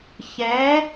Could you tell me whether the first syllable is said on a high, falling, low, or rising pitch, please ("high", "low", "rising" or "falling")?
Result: rising